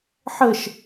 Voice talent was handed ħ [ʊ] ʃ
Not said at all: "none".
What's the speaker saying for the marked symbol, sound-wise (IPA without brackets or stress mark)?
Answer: ə